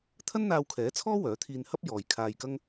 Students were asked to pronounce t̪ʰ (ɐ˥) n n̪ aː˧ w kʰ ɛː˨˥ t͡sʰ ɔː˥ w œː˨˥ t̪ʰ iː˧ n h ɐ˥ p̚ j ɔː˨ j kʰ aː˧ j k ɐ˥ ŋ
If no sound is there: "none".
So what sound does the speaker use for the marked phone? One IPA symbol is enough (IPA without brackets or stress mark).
ɐ˥